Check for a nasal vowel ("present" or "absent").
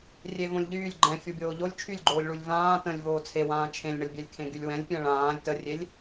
present